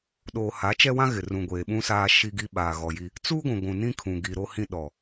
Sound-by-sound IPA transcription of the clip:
ɗ oː˨ h a˨˦ t͡ʃ ɛ˦ w ã˦ ɣ ɪ˨ r ũ˨ ɡʷ eː˨ ɓ ũ˦ s aː˦ ʃ i˦ ɡ i˦ ɓ aː˨ ɣ ɔ˨ j i˦ | t͡s uː˦ ɡʷ ũ˨ ɡʷ ũ˨ n ĩ˦ kʰ ũ˨ ɡ i˨ ɾ o˦ h ĩ˦ ɗ ɔ˨

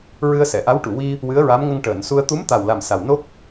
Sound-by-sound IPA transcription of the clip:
ɹ ɨ˧ ə̯ s ɛ˨˩˨ ʔ a˧˥ w ʈ u˨˩˨ w i˧ | w ɨ˧˥ ə̯ ɹ a˧˥ m ŋ ə˧ ŋ ʈ əː˨˩˨ n s u˧ ə̯ t̪ u˧˥ m t̪ a˨˩ w l a˨˩ m s a˨˩ w n o˦˥ k̚

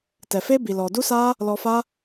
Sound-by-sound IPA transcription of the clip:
t ɛ˨ f e˦ b i˨ l ɔ˨ d u˦ s aː˦ | l ɔ˧ f a˦

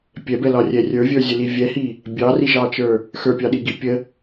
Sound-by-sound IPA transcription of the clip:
pʲ ɛ b ɛ l ɒ rʲ ɛ rʲ ə˞ vʲ ə˞ zʲ ə l i vʲ ɛ h i | bʲ ɑ r i ʒ ɑ t͡ʃ ə˞ | x ə˞ pʲ ɑ ɗ i ɡ i pʲ ə

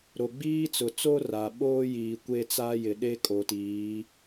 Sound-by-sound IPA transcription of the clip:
ɾ o˨ ɡ͡b iː˦ t͡s ʊ˨ t͡s o˦ r a˨ ɓ oː˦ j i˨ kʷ e˦ t͡s a˦ j ɪ˨ ɗ e˦ kʼ o˨ t iː˨˦

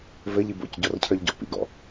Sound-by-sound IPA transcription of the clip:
v ɘ ʎ i b o̰ c ɟ ɔ r cʰ ə˞ ʎ ɟ ɔ̰ p ḭ ɡ ɔ̰

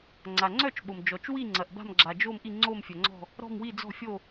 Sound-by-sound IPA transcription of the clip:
ŋ͡ǀ a˨ ŋ͡ǀ œ˥˧ t͡ʃ ɓ o˨ m d͡ʒ ɔ˨ t͡ʃ w i˥˧ ŋ͡ǀ ɐ˨ ʔ b a̤˥˧ m ɡ͡ǁ a˨ d͡ʒ o˥˧ m ʔ i˥˧ ŋ͡ǀ o˥˧ m fʲ œ˨ ŋ͡ǀ ɔ̤˥˧ | ɾ ɔ̤˥˧ m w i˥˧ d͡z ɔ̤˥˧ fʲ o˥˧

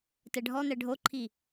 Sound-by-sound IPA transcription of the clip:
t ɛ ɖʱ ɔ n̪ ɛ ɖʱ o ǃʰ i

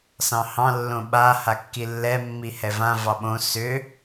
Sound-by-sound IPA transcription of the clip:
s ɑ̃ h ɑ̃ lː õ ɓ a h a kː i lː ɛ mː i h ɛ v ã v ɑ ɓ õ s ʏ

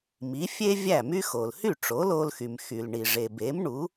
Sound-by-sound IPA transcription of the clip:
m i˩˥ fʲ e˥ vʲ æ˥˩ m y˥ x o˩ l h y˥˩ ʈ͡ʂ o˩˥ l o˧ l x y˩ m x y˩ l ɳ i˩ ʐ e˩ b e˩˥ m ɳ u˩˥

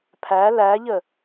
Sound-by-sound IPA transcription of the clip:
pʰ æ l æ ʎ ə

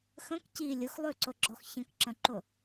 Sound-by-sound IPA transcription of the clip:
x ə̃ k c i lʲ ʊ x lˠ ʉ ǀ ʊ ɡ͡ǁ ɔ x ç ə̃ k ǁ ə̃ ǃ ʊ

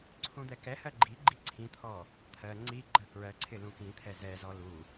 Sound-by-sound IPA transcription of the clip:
ǀʰ ũ d̪ ɛ k ɛ h ɜ ɡ͡ǃ i ɡ͡ǃ i ǀʰ ĩ t̪ʰ ɔ | t̪ʰ ɜ ŋ͡ǀ i ɡ͡ǃ ɜ k ɹ ɜ ǀʰ ɪ l ũ k ĩ t̪ʰ ɛ z ɛ z ɔ l u

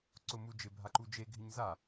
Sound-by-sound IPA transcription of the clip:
ǀ ʊ m u d͡ʒ ɪ bʱ a ǃ u d͡ʒ e ɡʱ ɪ ɲ z a

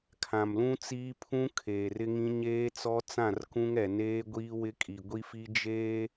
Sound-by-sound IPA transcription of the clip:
kʰ ã˨ m l ũ˦ t͡s iː˦ pʰ ũ˦ kʰ eː˨ r ɪ˦ ŋ ĩ˦ ɲ eː˦ t͡s ɔ˦ t͡s ã˦˨ r k ũ˦ ŋ ɛ˨ n eː˦ ɡʷ iː˦ w ɪ˦ kʼ i˨ ɡʷ i˦ f i˦ d͡ʒ eː˦

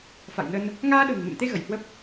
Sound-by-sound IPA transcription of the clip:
f a̰˧˨ j n ə˧ n | ŋ aː˧ ɗ ə̤ː˨˩ ŋ m ḛ˧˨ m t̪ e˧ ɣ ə˧˩ j h w ə˦˥ p̚

